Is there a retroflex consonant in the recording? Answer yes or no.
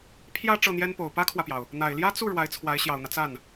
yes